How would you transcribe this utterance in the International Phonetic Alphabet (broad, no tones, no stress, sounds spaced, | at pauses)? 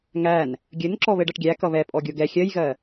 ŋ æ n | ɡʲ ɘ n ǁ ɔ β ɘ ɖ ʌ ʈ ɡʲ æ k ʌ β ɛ pʼ ɔ ɡʲ o ɡ ɛ xʲ ɜ j ɣ ɜ